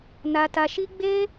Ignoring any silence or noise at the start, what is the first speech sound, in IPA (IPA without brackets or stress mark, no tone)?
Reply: n